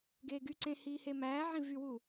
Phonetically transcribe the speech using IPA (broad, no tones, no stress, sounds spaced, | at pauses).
ɡ eː ɡ y ǀ ẽ h iː h e m æː ʕ ĩ v y w u